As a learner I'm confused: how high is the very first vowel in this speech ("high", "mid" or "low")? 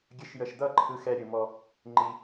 mid